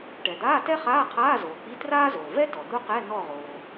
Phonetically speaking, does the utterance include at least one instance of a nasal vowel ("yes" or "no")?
no